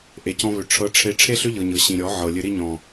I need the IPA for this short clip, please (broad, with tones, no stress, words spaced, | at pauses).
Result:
ʔe˨cɔ̃˧βʏ˨ ʈ͡ʂʰɤ˧ʈ͡ʂʰe˧ ʈ͡ʂʰe˦ɬʏ˦ʎɤ˨ɲɤ˨ ɕĩ˨ɾʲɔ˨˦ʕɤ˨ lʲɨ˨ɾi˧ɲɔ̃˨